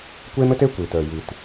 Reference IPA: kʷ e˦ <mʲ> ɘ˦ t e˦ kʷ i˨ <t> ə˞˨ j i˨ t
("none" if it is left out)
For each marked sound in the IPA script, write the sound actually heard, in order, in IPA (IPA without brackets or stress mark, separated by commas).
m, t